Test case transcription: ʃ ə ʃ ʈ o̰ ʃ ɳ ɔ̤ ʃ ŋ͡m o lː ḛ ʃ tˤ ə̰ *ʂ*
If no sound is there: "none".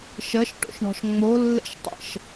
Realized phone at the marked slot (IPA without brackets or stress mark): ʃ